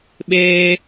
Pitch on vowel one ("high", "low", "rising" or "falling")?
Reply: high